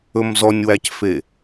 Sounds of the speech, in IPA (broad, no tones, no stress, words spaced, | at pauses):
ɵmzɔnʲwæcfe